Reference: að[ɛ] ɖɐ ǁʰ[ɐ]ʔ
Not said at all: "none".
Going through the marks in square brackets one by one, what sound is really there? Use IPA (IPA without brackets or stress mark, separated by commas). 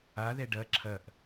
ɛ, ɐ